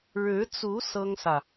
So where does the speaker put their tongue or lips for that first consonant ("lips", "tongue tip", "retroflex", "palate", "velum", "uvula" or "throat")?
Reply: retroflex